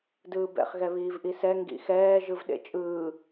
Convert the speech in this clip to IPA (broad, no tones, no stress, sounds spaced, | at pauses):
d ɯː b ɛ̰ χ ɣ ɛ β iː v ʔ i s ɛ ŋ ɡ ḭ x ɛː ʒ ɯ v ɗ ḛ t͡ʃʼ ɯː